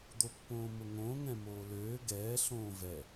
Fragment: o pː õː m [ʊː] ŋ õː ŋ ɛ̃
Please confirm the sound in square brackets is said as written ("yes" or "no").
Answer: no